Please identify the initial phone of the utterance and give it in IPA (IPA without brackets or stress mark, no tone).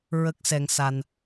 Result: ɹ